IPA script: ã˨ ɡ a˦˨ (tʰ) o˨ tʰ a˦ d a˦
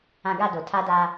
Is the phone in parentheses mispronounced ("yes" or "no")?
yes